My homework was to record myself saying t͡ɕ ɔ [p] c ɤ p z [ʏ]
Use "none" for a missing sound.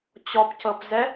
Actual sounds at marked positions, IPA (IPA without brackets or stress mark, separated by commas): p, ɛ